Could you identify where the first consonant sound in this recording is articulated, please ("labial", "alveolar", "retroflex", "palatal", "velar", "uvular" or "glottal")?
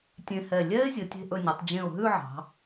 alveolar